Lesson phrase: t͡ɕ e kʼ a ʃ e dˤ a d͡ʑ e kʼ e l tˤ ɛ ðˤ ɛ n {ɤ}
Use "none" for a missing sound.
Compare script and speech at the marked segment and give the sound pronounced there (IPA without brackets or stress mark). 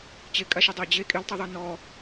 ɔ